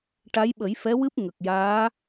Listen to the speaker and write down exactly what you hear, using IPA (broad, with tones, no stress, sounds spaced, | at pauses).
ʈ a˧˥ j ɓ ə˨˩˦ j f ɛ˧˥ w ɨ˦˥ p̚ ŋ ə˨˩ k̚ j aː˧˥